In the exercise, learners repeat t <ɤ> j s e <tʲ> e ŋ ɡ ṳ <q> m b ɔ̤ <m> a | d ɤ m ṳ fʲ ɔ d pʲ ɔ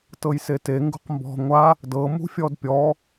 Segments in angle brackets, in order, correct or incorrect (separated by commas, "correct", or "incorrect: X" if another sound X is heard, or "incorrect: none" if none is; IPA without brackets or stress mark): correct, incorrect: t, correct, incorrect: ŋʷ